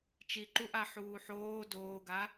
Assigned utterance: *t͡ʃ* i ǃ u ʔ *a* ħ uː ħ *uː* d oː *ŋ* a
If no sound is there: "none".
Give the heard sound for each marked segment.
t͡ʃ, a, oː, ɡ

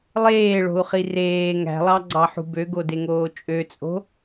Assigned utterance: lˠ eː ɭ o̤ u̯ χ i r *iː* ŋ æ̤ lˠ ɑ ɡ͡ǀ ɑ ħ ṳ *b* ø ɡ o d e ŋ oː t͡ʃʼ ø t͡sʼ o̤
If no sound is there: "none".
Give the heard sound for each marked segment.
eː, b

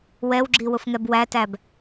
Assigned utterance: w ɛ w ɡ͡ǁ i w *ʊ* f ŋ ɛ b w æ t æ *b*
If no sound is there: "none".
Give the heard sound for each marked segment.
ʊ, b

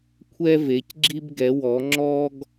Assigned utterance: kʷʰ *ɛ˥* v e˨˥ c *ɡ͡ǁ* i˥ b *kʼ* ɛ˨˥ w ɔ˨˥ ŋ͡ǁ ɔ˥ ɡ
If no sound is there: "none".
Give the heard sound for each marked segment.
ɛ˥, ɡ͡ǁ, ɡ

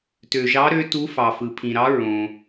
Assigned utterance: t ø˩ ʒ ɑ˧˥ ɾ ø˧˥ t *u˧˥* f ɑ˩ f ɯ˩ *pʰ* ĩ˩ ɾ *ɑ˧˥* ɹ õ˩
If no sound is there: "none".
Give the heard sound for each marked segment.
u˧˥, pʰ, ɑ˧˥

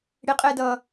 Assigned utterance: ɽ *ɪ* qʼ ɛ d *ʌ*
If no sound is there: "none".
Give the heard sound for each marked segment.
ɪ, ʌ

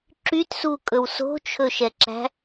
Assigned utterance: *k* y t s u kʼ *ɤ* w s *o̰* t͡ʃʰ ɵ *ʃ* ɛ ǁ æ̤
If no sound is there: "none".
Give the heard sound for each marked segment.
ǁ, ɵ, o̤, ʃ

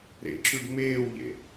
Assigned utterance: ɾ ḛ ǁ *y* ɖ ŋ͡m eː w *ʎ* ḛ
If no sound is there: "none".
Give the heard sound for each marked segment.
y, ʎ

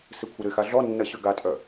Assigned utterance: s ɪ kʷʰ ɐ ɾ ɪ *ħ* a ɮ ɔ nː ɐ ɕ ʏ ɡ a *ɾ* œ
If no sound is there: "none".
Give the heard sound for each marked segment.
x, tʼ

